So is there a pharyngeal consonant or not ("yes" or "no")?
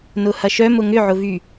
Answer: yes